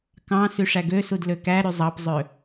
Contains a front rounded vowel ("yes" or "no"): yes